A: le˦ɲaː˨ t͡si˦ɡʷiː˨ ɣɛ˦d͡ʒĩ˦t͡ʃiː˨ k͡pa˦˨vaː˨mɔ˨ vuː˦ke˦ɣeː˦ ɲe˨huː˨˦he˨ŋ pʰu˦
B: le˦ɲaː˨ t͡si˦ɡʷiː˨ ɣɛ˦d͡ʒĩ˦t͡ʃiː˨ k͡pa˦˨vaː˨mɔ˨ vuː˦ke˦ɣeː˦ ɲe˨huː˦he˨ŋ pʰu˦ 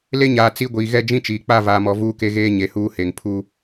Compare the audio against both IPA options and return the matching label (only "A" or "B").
B